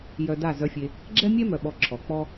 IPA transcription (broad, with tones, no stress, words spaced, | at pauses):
jœ˧da˦˨ zœ˧fʲe˧ | ɡ͡ǁɛ˦mʲɛ˦mœ˨ ɓɔ˧ǁʰɔ˨k͡pɔ˦